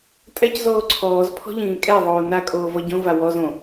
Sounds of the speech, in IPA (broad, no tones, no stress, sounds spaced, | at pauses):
tʼ ɛ c z oː ǀʰ ɔː z pʰ ɔ̤ ʎ ĩː kʼ ɛ ðˤ oː n a kʼ oː v ɔ ɟ õ v a w ɔ z õ